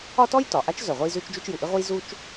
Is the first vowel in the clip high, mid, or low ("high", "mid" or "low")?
low